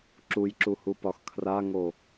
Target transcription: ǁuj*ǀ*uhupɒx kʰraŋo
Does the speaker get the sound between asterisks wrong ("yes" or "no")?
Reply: yes